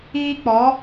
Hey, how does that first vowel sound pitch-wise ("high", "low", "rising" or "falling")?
high